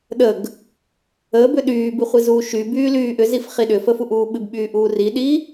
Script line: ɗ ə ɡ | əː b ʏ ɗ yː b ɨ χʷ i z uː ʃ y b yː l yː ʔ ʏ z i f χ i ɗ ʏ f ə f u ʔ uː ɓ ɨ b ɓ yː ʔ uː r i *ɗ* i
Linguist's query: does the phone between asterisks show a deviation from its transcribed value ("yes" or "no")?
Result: no